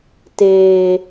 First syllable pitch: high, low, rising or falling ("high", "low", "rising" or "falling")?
high